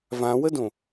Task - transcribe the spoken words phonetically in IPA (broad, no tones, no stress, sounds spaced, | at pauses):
v ã w ə d õ